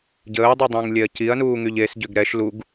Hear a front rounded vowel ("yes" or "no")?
yes